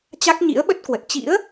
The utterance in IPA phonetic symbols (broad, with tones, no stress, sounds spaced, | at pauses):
t͡ɕ a˦˥ k̚ ɲ ḭ˧˥ ə̯ ɓ ə˦˥ t̚ k w ə˨˩ t̚ t͡ɕ ḭ˧˥ ə̯